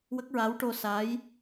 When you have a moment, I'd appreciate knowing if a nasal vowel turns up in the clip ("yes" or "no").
no